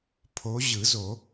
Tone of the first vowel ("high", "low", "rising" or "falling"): rising